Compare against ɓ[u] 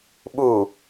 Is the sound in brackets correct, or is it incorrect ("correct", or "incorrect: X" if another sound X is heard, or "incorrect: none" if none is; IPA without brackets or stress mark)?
correct